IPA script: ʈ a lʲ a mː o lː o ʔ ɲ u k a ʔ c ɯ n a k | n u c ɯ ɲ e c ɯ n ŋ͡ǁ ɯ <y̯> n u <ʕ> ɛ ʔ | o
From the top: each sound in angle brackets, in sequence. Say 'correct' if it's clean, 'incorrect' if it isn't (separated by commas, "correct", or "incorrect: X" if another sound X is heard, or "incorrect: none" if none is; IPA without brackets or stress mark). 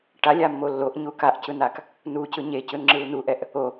incorrect: u̯, incorrect: ʔ